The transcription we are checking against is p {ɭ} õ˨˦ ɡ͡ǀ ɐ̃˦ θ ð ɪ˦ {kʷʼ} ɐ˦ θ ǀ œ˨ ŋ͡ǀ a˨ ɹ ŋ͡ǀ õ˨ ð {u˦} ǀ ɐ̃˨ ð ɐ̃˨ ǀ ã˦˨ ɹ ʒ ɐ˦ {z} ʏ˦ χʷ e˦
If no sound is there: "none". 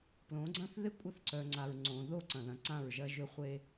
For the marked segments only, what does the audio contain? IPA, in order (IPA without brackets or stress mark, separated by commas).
l, kʷʼ, o˦, ʒ